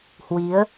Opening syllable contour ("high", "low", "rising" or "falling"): rising